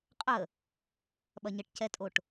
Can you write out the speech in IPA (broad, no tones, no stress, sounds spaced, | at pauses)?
qʼ ə | ɓ ɐ ɲ ə ʈ c ɛ tʼ o ʈ